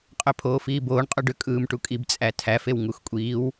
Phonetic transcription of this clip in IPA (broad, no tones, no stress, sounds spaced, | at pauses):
qʼ ø pʰ oː f iː b oː ɳ qʼ u ɖ ø kʼ ɯː m ʈ u kʼ i b t͡sʼ æ tʰ æ f e w ŋ u x kʷʼ iː w